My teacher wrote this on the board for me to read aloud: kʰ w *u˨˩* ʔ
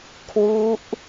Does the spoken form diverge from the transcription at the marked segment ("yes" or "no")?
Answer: yes